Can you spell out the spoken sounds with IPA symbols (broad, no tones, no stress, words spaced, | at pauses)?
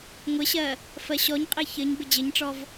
ŋʷɪɕɜ | fɜɕɔɲqʼi çɘɲ bɪd͡ʑɘɲʈ͡ʂɔv